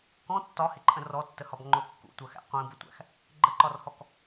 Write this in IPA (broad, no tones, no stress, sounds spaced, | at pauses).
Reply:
k ɔ̃ tː ɒ h ɪ ǃʼ ə̃ r ɔ tː ə h ɒ b ŋ͡ǃ ʊ kː ṵ tʷ ɜ x æ̰ qʷ ĩ b ʊ tʷ æ̰ x | ɡ͡ǃ ə ǃ ɒ r h ɔ k